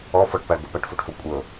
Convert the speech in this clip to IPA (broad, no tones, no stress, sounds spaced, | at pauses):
ɔ f ɔ ʈ p a ɭ ɡʷ ɤ p a ʈ f o ʈ f ɤ kʷʼ ɤ